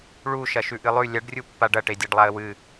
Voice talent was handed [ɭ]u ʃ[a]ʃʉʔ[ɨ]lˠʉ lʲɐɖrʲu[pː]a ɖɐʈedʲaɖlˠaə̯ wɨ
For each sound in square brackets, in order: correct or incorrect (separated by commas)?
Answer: correct, incorrect, correct, correct